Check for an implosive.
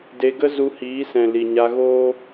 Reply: absent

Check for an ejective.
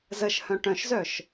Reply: absent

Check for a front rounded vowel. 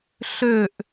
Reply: present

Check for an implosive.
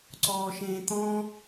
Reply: absent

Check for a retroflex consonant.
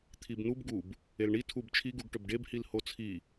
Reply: present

